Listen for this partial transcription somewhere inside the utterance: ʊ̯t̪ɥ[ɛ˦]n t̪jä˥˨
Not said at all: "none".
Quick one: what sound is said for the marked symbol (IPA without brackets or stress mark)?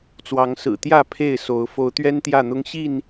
ɛ˦